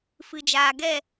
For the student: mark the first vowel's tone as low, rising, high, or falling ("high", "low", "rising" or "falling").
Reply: low